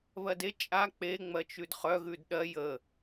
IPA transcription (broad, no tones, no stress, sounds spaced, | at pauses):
β ɜ d e t͡ʃʼ a k͡p e ŋ͡m ɜ t͡ʃ ʉ d χ œ ɣ ʉ d ɗ ɜ j ə